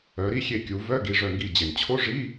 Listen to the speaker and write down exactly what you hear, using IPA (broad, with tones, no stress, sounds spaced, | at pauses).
œ˩˧ ɾ i˥˨ xʲ e˧˩ kʲ u˩˧ v œ˧˥˧ ɡ i˩˧˩ ʐ œ˧˩ ŋ ɡ i˧˩ d͡ʑ e˩ n t͡ɕʰ o˧˥˧ ʐ i˧˥˧